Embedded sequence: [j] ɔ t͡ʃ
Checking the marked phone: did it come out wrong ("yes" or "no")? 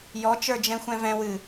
no